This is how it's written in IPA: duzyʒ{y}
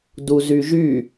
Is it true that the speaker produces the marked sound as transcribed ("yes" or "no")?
yes